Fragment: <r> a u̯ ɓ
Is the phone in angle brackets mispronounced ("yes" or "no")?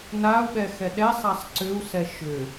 yes